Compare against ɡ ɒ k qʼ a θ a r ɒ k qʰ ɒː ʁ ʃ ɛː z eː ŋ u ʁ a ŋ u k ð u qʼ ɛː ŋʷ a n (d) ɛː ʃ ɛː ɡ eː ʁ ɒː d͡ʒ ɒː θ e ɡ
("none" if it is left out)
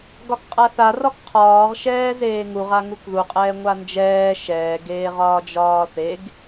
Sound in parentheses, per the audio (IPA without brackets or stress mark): d͡ʒ